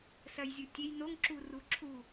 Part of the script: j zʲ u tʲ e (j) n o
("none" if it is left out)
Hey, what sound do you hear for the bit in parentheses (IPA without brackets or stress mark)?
j